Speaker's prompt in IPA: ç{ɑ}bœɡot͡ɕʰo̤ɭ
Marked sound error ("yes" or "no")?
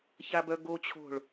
yes